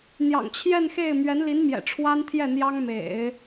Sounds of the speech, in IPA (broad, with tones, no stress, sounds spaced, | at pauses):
n̪ j ɑ̰˨˩ ŋ t͡ɕʰ j ɛ˥˧ n x e˥˩ ɪ̯ m ɥ ɛ˧˥ n l i˧˥ n m j ɛ̰˨˩ ʈ͡ʂʰ w a˥ n t̪ʰ j ɛ˥˩ n̪ j ɑ˥ ŋ m ḛ˨˩˦ ɪ̯